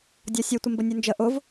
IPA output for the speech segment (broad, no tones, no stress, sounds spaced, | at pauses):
dʲ ɔ sʲ u tʷ ə m b ə nʲ u n d͡ʒ ə ʔ ʊ v